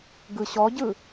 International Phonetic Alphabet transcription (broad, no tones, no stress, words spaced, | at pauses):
ɡɯɕɔɟɯ